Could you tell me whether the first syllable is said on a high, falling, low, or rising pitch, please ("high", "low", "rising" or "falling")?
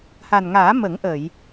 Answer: low